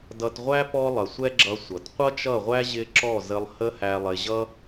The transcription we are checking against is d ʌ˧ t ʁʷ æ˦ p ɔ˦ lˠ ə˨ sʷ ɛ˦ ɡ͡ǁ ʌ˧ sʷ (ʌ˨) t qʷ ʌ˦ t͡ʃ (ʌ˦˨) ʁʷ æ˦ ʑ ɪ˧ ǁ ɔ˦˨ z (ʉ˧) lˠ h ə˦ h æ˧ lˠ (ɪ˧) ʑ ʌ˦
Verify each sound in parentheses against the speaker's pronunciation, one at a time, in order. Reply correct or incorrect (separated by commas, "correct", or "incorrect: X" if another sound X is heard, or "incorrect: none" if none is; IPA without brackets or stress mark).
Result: correct, correct, incorrect: ə˧, correct